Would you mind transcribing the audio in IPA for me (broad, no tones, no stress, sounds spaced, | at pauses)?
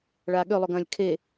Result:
ɭ aː ɠ ø lˠ o ɡ ɐ̃ː lʲ kʰ e